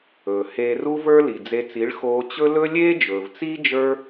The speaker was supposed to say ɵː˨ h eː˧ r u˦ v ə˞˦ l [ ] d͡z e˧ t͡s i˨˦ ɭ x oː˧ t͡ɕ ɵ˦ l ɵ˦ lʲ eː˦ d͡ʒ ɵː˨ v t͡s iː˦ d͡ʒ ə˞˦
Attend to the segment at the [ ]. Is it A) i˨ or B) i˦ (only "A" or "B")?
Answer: A